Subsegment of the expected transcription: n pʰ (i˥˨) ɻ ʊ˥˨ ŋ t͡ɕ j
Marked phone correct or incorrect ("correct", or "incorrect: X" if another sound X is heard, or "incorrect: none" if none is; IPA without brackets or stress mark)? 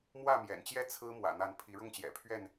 incorrect: i˨˦